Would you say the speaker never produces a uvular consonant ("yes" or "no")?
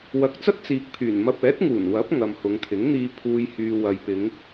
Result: yes